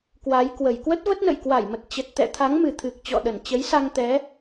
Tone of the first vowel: rising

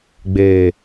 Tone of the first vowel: low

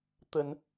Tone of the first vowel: low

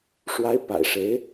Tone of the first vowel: rising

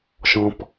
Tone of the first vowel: high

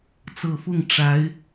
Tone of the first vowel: low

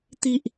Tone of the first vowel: high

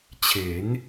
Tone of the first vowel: rising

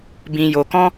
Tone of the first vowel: low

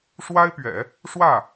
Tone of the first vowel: high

